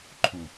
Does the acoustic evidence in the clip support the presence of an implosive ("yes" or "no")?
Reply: no